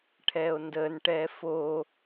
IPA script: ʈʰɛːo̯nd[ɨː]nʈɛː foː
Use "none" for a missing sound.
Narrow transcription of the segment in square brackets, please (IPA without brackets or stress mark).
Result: əː